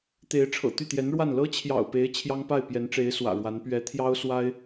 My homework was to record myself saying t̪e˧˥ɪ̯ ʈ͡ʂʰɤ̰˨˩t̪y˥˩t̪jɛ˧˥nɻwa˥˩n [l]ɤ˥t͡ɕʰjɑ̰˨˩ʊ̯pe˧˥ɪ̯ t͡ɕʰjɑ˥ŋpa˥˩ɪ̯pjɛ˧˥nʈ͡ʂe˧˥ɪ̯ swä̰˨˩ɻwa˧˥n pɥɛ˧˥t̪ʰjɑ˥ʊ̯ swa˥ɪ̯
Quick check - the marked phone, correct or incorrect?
correct